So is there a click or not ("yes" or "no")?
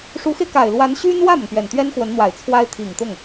no